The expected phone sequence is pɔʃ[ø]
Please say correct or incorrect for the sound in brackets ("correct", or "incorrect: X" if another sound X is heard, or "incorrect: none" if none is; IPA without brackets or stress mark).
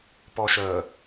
incorrect: ə